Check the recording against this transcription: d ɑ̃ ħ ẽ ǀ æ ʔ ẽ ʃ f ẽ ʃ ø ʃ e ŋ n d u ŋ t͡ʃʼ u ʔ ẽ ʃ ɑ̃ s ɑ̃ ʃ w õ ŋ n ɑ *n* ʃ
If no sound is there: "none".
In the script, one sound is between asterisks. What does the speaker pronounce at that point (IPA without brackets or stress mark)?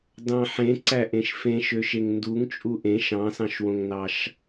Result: none